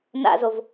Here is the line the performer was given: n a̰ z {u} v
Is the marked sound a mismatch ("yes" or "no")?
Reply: yes